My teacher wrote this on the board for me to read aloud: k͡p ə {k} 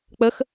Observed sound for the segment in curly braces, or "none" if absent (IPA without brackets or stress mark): x